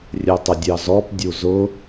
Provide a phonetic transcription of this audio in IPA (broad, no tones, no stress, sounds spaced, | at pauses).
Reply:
rʲ ɛ tˤ ə dʲ ɑ z ɔ p dʲ u z ʊ